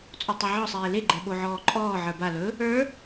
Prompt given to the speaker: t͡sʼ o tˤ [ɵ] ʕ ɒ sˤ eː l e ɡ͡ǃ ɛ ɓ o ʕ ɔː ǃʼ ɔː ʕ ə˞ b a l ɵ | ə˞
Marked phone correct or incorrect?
correct